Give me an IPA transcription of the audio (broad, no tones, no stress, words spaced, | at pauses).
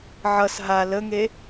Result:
ʕʌs ɦa ləŋe